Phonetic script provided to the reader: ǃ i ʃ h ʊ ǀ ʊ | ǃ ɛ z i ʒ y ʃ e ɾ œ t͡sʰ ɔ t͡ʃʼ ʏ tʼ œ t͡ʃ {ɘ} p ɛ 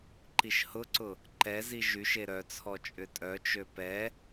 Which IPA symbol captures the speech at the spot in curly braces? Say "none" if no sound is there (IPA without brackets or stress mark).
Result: ø